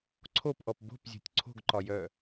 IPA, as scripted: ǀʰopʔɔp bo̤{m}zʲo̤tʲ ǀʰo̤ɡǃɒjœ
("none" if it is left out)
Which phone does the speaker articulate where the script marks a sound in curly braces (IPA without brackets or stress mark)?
p